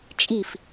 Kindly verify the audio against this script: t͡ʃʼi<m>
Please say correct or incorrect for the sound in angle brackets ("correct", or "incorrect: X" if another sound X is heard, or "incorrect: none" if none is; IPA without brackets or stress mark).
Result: incorrect: f